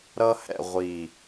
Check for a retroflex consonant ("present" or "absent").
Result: absent